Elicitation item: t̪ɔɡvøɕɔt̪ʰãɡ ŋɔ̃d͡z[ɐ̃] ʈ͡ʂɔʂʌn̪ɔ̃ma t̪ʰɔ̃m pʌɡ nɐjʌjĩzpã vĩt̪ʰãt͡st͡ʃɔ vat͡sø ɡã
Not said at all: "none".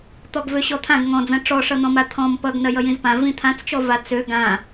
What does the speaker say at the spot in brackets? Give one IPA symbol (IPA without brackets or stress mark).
ɐ̃